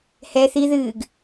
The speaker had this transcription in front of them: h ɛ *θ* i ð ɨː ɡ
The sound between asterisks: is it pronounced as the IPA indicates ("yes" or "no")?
yes